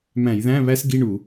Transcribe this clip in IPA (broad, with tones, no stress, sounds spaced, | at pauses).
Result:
m æ̃˧˩˧ j ð æ̃˧˥˧ β æ˥ s ɡ i˧˥˧ ɳ u˧˩˧